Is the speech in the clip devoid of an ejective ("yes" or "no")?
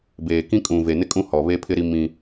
no